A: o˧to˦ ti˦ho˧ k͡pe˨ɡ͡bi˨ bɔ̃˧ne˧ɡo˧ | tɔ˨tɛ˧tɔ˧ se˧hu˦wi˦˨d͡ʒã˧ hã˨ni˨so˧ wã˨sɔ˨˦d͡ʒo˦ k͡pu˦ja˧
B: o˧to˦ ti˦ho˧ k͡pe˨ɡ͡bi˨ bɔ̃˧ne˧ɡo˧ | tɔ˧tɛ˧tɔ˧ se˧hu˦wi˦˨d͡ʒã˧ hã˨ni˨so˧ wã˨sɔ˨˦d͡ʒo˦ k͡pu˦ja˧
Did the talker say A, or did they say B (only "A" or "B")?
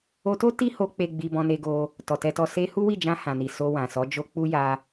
A